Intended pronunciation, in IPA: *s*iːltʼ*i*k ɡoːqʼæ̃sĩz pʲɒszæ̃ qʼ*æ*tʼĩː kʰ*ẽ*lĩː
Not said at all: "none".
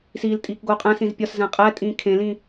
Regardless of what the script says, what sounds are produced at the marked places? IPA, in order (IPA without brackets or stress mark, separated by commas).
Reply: s, iː, æ, ẽ